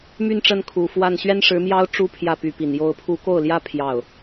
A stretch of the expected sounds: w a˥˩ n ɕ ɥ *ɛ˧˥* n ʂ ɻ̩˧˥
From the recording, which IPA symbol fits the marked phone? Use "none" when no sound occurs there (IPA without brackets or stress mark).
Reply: ɛ˥